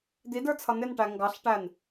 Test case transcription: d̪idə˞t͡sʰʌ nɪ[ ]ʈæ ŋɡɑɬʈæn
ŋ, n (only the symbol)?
n